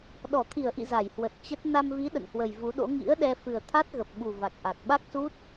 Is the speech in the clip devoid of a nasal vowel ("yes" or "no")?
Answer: yes